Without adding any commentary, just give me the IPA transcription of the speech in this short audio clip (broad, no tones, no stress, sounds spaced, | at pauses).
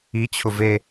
i t͡ɕʰ ʊ v e